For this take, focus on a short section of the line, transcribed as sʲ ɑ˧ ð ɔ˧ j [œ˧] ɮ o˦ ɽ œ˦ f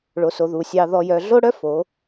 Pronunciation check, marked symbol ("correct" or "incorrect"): correct